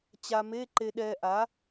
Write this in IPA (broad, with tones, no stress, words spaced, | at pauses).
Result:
t͡ɕa˧me˧˥˧ ǃe˧ɗɛ˧ʔa˩˥